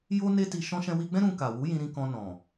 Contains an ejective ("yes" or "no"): no